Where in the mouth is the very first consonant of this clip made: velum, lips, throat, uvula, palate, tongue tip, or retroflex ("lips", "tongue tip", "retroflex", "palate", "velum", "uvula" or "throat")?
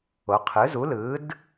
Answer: uvula